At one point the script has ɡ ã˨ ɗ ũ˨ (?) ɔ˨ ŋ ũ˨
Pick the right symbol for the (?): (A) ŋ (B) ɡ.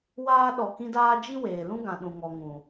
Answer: A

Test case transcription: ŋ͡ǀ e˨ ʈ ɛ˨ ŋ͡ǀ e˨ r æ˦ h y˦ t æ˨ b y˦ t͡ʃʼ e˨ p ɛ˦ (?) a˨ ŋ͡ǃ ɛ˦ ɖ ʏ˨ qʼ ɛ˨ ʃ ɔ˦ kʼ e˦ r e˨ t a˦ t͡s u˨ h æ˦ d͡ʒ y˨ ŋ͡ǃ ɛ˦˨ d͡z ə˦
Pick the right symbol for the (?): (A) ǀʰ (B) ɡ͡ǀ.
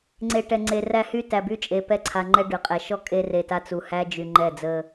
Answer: A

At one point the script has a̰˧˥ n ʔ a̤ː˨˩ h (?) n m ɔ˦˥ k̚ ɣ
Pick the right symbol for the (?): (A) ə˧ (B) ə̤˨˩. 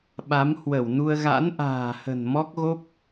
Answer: B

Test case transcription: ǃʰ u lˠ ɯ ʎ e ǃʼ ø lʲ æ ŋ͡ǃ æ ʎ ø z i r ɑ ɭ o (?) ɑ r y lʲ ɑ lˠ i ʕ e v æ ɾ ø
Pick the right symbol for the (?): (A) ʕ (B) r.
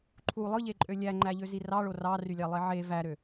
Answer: B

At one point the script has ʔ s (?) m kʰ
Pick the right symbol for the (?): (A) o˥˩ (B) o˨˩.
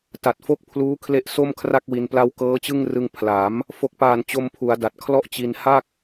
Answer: A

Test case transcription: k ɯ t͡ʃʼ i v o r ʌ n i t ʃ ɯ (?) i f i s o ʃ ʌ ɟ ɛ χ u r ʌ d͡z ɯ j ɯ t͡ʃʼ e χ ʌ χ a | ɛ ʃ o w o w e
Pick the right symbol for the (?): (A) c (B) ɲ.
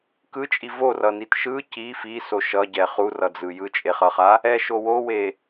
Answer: A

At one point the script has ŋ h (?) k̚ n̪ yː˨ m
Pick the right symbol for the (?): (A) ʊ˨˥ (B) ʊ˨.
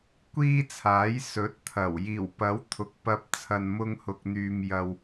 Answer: B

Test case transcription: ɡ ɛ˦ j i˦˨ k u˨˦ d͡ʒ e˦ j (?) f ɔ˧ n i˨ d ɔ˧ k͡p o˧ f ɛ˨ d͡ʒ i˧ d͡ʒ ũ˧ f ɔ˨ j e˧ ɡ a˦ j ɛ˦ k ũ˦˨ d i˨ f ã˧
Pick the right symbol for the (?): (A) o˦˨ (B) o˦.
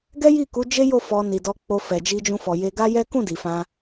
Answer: A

